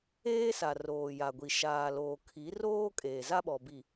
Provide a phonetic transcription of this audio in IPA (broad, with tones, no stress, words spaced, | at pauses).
eː˦sa˨ roː˨ja˨ɡʷi˨ ʃaː˨loː˨ kʰi˨˦roː˦ kʼeː˨za˦ɓɔ˨bi˨